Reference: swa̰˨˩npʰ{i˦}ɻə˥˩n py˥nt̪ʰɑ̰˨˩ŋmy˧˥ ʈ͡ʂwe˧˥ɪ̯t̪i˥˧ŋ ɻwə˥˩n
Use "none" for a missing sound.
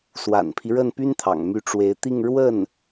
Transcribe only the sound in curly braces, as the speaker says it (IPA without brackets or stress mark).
i˦